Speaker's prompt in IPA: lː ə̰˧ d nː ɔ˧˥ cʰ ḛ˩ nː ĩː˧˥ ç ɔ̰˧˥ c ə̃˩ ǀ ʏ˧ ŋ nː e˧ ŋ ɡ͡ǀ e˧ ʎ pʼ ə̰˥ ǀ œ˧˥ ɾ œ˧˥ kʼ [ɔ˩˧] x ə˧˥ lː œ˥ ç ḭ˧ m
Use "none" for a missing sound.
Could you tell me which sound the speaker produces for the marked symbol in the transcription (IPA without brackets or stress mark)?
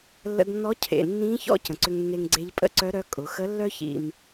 ʊ˩˧